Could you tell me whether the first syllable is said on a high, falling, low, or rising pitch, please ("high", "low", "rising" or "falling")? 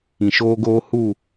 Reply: low